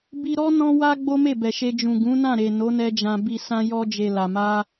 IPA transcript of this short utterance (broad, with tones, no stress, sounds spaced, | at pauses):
b i˧ ɾ ɔ˦ n ɔ̃˧ w a˧ ɡ͡b o˦ m e˦˨ b ɛ˨ ʃ e˧ d͡ʒ ũ˨ ɡ ũ˨˦ n ã˦˨ ɾ e˨ n o˨˦ n ɛ˧ d͡ʒ ã˨ b i˨ s ã˧ j ɔ˧ d͡ʒ e˨ l a˨ m a˧